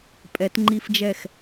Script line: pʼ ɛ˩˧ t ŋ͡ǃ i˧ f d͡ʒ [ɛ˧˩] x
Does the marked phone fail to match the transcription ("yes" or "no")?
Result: no